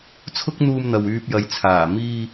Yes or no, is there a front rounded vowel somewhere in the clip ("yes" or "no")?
yes